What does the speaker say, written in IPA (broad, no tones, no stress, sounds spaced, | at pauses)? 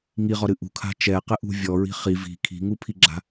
ŋ i ʁ ɔ ɾ ɨ ʔ ṳ kʰ a̤ t͡ʃ ɛ q ɘ ʔ ṳ vʲ ɔ ɹ i̤ χ i v i̤ kʰ i̤ ŋ u pʰ i ɡ͡ǁ a̤